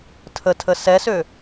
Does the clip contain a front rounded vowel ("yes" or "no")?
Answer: yes